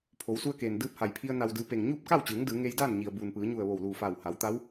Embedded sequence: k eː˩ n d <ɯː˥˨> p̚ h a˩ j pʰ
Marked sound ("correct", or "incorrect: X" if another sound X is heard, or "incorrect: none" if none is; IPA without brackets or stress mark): incorrect: ɯː˧